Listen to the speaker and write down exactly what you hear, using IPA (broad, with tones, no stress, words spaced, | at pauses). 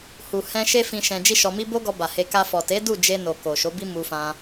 hu˨ hɛ̃˧ ʃe˦fĩ˧ ʃɛ̃˧d͡ʒi˦ʃɔ˧mi˦ bo˦ɡɔ˧ba˨he˧ ka˧fɔ˨ te˨˦ du˦˨d͡ʒe˧ no˨ko˨ ʃo˨˦bi˦ mu˧fã˧